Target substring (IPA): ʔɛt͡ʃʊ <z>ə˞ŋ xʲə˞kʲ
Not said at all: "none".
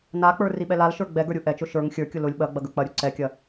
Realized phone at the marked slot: ʃ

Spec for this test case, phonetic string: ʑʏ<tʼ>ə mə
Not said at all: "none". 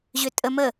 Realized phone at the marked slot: tʼ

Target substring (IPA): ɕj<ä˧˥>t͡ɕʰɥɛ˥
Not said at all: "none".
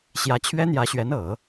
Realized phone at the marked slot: ä˧˥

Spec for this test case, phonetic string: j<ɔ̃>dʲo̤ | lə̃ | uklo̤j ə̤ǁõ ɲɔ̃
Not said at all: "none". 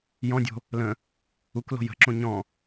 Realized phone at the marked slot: ɔ̃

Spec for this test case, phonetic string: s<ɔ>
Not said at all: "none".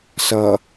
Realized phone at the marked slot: ʌ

